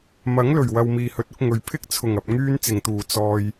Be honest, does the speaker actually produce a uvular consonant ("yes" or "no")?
no